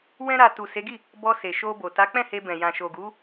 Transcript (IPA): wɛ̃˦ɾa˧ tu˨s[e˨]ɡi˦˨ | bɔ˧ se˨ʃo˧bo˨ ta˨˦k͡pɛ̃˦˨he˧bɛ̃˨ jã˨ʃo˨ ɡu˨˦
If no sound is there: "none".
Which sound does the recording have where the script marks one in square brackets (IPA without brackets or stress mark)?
e˨˦